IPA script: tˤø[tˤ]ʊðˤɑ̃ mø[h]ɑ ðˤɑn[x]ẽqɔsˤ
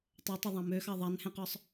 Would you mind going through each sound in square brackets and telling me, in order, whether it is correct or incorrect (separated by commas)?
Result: correct, incorrect, incorrect